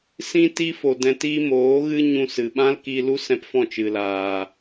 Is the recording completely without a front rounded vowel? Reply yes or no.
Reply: yes